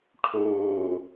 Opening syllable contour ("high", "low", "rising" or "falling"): low